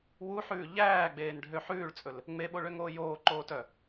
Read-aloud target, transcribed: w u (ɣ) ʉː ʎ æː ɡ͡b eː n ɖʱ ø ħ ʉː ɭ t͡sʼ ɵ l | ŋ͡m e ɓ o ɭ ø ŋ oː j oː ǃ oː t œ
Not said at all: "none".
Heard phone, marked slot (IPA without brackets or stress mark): ħ